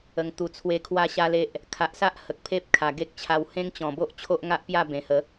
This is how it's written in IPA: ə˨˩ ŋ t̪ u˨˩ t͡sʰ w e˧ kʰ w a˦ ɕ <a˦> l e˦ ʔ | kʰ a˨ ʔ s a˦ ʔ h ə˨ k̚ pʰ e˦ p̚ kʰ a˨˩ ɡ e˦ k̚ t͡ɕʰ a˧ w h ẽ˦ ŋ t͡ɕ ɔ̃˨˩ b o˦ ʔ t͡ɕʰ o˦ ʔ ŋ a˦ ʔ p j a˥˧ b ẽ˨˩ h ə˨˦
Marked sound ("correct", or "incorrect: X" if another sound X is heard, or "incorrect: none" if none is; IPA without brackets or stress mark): correct